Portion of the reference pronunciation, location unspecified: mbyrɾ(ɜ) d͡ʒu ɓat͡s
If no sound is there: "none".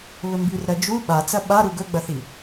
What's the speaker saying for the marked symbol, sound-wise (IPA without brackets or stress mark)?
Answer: ɜ